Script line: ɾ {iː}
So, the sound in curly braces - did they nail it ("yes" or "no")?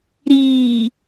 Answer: yes